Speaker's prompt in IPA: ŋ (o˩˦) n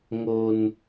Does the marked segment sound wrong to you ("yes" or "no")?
yes